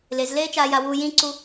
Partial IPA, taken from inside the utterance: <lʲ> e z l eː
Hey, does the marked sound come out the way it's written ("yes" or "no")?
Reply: no